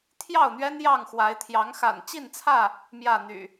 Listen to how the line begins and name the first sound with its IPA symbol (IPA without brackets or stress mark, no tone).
t̪ʰ